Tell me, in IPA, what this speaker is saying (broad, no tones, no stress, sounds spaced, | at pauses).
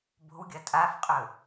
b o̤ w ɡʲ ɐ tʼ a f qʼ ɵ